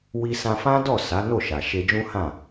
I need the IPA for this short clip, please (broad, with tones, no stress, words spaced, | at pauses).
wi˧sã˧fã˦dɔ˦˨ sa˨˦no˦˨ʃa˨ ʃe˧d͡ʒũ˦hã˦˨